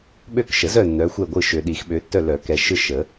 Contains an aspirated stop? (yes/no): no